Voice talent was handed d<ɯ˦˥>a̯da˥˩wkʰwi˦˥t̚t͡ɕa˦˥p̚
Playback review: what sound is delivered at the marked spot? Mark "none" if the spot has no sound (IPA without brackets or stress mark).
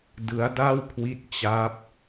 ɯ˦˥